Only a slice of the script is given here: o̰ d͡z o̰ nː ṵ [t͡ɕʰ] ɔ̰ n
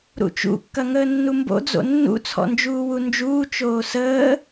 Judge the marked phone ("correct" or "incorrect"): incorrect